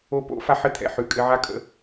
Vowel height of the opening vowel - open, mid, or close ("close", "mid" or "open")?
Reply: mid